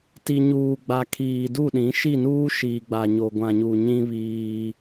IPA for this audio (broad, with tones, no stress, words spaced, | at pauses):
ti˨ɲuː˨ɡ͡ba˨ kʰiː˨du˦˨ɗĩ˨˦ ʃi˦˨nuː˦ʃiː˨ɡ͡ba˨ ɲo˨ɡʷã˨ɲu˨ ɲĩ˦βiː˦